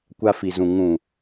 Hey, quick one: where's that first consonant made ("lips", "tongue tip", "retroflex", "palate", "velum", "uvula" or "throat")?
velum